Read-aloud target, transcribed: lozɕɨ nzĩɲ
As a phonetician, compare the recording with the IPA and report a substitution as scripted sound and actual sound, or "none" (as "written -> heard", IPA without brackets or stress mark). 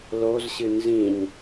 none